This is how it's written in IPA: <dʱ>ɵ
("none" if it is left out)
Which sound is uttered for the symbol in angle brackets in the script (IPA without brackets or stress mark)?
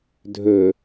dʱ